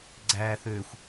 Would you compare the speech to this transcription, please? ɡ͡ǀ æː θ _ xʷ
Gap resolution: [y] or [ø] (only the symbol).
ø